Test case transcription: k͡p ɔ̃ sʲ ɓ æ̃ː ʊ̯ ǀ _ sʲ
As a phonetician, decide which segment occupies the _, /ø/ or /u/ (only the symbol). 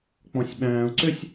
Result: ø